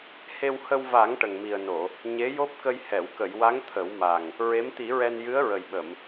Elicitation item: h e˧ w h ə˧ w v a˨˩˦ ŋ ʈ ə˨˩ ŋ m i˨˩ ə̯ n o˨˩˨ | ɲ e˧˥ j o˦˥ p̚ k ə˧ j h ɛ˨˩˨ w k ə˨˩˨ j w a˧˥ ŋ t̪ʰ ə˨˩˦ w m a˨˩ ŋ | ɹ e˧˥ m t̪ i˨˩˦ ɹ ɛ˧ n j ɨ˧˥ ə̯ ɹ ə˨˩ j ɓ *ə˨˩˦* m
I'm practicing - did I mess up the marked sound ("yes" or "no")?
yes